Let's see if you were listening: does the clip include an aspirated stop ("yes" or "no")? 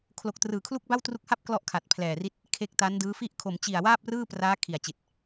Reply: yes